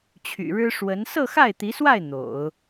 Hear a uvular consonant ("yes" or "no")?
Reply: no